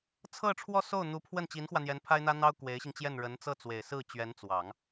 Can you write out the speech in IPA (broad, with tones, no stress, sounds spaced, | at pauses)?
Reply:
t͡sʰ ɤ˥˧ ʈ͡ʂʰ w ɔ˥˧ s o˥˩ ʊ̯ n̪ u˧˥ pʰ w ə˥˩ n t͡ɕ i˧˥ n x w ä˧ n̪ j ɛ˧˥ n pʰ a˥ ɪ̯ n̪ ä˥ n̪ ɑ˥ ʊ̯ k w e˧˥ ɪ̯ ɕ i˧ ŋ t͡ɕ j ɛ˥˩ n ɻ ə˧˥ n t͡s ɤ˥˩ t͡s w e˨˩ ɪ̯ s ɹ̩˥˩ t͡ɕ ɥ ɛ˧˥ n t͡s w ɑ˨˩˦ ŋ